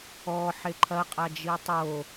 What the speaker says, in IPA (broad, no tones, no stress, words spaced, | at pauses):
ɔ ħeǃʰɐqʼa d͡ʒitˤo